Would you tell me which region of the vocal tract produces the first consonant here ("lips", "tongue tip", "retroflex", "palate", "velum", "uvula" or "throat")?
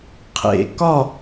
uvula